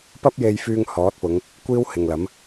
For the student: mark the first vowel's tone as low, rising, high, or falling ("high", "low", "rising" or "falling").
high